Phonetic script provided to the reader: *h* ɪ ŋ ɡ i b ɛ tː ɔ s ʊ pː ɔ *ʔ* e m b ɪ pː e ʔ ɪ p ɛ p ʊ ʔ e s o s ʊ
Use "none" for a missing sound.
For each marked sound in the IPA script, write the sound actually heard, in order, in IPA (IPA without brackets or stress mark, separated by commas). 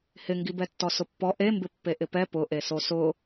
h, ʔ